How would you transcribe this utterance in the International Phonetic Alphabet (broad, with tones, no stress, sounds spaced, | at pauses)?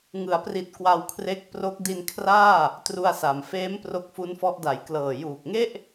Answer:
ŋ ɯ˩˦ a̯ p r i˨˩ t̚ k w a˧ w kʰ r e˦˥ k̚ p r o˦˥ k̚ d i˧ n kʰ r aː˥˩ | t r u˧ a̯ s a˩˦ m f eː˦˥ m p r o˦˥ k̚ f u˦˥ n f ɔ˦˥ ʔ d a˨˩ j k l ɤː˨˩ j uː˨˩ k̚ ŋ e˥˩ ʔ